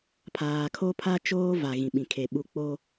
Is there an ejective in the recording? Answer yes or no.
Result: no